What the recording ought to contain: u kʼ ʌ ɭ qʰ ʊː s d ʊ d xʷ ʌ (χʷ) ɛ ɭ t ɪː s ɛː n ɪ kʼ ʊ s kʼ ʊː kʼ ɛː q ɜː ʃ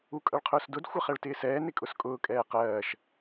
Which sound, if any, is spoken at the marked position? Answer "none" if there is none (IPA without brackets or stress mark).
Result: χ